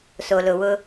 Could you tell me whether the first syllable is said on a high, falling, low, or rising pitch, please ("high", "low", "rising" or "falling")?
low